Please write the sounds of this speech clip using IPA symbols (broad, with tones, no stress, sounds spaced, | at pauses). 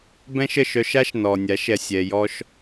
b ɛ̃˦ ʃ ə˦˨ ʃ œ˧ ʃ a˦ ʃ n ɔ˨ nʲ a˨˦ ʃ ɛ˧ sʲ ɛ˧ j ɔ˦ ʃ